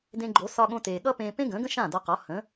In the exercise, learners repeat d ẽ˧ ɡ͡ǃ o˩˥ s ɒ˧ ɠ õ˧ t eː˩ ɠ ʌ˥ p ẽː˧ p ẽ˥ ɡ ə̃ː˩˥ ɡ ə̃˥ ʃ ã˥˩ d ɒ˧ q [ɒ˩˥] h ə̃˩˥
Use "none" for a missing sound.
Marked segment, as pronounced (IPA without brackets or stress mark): ɒ˩˥